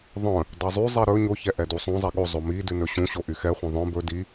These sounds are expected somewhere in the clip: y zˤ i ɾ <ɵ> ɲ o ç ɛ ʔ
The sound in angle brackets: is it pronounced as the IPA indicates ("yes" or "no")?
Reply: yes